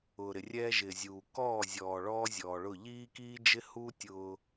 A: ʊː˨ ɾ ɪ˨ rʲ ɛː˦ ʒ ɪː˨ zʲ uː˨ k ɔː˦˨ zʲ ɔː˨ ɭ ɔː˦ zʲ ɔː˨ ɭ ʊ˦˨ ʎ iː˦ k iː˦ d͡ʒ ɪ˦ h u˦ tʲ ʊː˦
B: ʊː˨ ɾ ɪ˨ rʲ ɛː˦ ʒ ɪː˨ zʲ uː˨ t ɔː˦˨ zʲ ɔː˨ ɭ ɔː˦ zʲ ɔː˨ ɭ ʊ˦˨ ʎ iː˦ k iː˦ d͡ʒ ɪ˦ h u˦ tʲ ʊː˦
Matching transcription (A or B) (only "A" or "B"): A